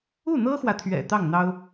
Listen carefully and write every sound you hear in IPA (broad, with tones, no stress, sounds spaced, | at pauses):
u˥˩ n̪ ɤ˥ x w ä˨ t̪ʰ ɥ ɛ̰˨˩ t̪ ɑ˥˩ ŋ n̪ ɑ˥ ʊ̯